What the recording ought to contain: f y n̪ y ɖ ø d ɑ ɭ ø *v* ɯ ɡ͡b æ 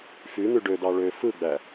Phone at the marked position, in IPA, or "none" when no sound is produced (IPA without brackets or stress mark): f